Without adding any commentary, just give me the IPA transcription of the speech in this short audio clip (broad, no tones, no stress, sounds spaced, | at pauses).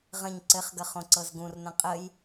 ʁ ə̃ ɲ ǀ ɘ χ ɡ ə χ õ ǀ ɤ z ɡ ũ r n ə̃ qʼ ə j